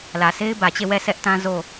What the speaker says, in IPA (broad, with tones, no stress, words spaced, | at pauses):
lä˨se˦ɪ̯bä˨t͡ɕe˦˨ wɛ˦˨sɛ˦ʔtã˦ zo˦˨